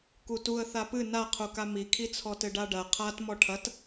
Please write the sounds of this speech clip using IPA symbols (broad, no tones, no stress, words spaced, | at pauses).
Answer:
kutuə̯ θapɨ naqʰuka mikʰit͡sʰɔtɘ ɖaɖɐ qʰat mɔʈʰɐt